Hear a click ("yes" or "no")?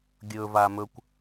no